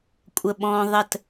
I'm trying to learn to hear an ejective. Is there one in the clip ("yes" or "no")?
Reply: yes